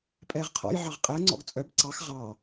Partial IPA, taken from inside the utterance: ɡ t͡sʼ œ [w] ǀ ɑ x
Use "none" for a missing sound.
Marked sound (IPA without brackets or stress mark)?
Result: b